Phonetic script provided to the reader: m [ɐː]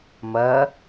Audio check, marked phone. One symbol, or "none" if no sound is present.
ɐː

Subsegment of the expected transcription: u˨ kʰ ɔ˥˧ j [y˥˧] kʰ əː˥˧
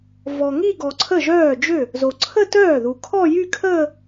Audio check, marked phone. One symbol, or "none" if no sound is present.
y˥˧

